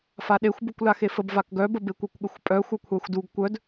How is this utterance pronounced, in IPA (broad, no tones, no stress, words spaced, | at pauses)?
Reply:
faɗexʷbukʷ laxefəb vakɡœbə bekʷœkʷɠəxʷpʼœ xʷœkʷʰaxʷduɡ kʷœd